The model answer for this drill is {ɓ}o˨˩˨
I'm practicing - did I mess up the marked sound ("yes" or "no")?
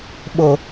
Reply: no